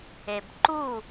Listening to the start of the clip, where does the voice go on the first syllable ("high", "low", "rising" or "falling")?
low